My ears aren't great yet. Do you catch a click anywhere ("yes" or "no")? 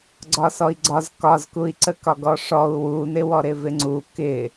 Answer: yes